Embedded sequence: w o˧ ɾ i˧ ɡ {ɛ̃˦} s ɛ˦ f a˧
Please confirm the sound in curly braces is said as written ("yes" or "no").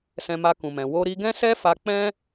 yes